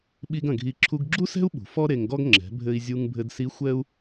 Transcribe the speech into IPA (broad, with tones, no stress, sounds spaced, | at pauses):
ɓ i˧ ɡ ɐ̃˩ ɡʱ i˧ ǁʰ u˧ ɡ ɡ͡ǁ u˥ s ɛ̤˥ u̯ ɓ ṳ˩ f ɔ˥ ɾ e˧ ŋ ɡ ɔ˥ ɡ ŋ͡ǁ ɛ̤˩˧ bʱ ɘ˧ i̯ zʲ u˧ ŋ bʱ ɘ˧ d s i˧˥ xʷ ɛ˥ u̯